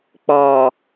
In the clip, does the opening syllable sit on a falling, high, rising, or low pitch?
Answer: low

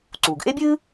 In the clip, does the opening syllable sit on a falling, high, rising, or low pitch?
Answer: low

